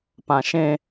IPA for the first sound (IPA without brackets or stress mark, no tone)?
p